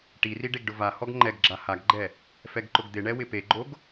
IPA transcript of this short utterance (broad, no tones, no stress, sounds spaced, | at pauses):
ʈ i r i ɖ e ɡ ɖ ʊ v a h ɔ ɡ ŋ͡ǃ ɛ ɡ ɡ͡ǁ a h a ɡ ɡ͡ǃ ɛ | f ɛ ɡ ǃ ʊ ɡ d̪ ɪ ɳ ɛ w ɪ p e ɡ͡ǃ o ɡ